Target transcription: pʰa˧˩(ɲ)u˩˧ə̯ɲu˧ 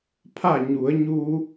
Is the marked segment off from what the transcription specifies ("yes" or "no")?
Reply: no